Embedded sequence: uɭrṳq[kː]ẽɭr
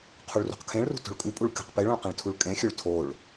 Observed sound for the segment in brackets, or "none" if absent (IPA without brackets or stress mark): kʰ